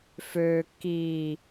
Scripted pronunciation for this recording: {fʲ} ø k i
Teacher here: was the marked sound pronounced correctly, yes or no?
no